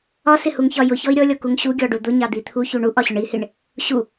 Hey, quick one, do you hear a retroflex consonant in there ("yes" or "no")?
yes